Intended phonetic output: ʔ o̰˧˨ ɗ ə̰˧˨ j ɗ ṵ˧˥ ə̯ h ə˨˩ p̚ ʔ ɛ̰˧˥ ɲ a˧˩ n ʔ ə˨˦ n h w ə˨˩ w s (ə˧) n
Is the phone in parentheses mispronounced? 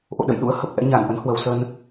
no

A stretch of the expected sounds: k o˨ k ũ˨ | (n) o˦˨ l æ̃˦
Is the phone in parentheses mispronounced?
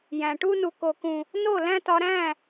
no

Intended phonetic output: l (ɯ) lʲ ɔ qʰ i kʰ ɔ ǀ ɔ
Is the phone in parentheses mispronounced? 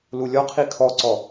yes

